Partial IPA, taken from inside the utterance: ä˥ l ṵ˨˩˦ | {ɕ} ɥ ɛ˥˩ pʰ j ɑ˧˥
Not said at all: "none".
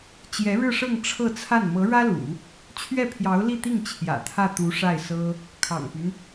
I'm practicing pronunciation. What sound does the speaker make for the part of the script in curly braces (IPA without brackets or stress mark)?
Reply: t͡ɕʰ